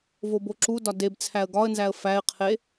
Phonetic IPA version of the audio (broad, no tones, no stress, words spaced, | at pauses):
voboǁudɒ debt͡sʰæə̯ ɡɒə̯nzæə̯ fæɪ̯qʰe